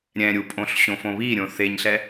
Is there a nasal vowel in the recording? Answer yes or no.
yes